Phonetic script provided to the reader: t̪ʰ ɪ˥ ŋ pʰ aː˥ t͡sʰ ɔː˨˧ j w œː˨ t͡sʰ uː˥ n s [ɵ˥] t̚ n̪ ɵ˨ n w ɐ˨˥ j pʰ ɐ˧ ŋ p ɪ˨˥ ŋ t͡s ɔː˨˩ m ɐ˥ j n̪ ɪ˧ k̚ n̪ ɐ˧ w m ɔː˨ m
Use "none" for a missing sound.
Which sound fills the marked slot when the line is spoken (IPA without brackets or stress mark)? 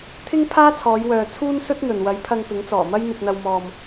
ɵ˥